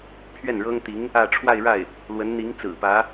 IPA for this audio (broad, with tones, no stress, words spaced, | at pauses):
pʰɥɛ˥˩nɻɤ˥ŋt̪i˧˥ŋ | ä˥˧ ʈ͡ʂʰwa˥˧ɪ̯ɻa˥˩ɪ̯ | lwə˧˥nn̪i˧˥ŋt͡sɹ̩˨˩pä˧˥